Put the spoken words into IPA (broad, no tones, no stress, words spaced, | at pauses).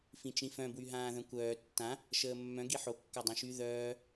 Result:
fĩt͡ʃĩfœ̃ bwyɦãːðœ̃kʷœː tːã | ʃəːmːœ̃ ɡiħo kːadˤœ̃ʃy ðœː